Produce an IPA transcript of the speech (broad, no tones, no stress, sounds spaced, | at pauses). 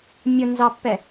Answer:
mʲ ʊ n z ɑ pː ɛ